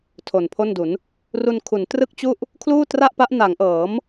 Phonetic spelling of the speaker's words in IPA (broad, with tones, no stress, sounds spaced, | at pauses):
tʰ o˨˩ n pʰ o˥˩ n d u˩˦ n | r u˧ n kʰ u˩˦ n t r ɯ˥˩ k̚ t͡ɕ u˥˩ ʔ | kʰ l uː˥˩ t r a˥˩ ʔ p a˦˥ ʔ n a˩˦ ŋ ʔ ɤː˩˦ m